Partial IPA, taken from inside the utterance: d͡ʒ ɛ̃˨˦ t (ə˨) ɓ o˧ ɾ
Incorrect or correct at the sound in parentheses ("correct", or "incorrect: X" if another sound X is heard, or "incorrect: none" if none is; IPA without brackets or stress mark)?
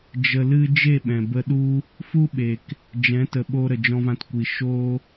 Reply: correct